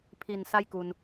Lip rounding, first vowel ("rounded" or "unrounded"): unrounded